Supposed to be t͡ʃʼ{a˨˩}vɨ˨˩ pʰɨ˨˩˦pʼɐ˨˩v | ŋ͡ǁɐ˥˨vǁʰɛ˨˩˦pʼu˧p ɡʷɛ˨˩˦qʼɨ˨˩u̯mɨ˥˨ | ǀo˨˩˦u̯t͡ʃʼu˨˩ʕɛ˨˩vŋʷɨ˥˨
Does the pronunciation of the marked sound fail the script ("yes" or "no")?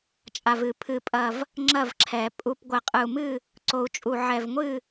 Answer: no